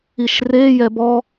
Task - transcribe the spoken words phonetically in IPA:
iʃrejɛ bɔ

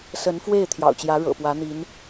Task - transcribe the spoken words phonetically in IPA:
sə˧˥nfwe˥˩ɪ̯ t̪ʰjɑ̰˨˩ʊ̯t͡ɕjä˧˥ ɻɤ̰˨˩pwä˧˥n̪i˧˥n

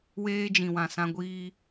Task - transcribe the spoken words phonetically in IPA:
weː˦d͡ʒĩ˨wã˨sã˦ ɡʷiː˦

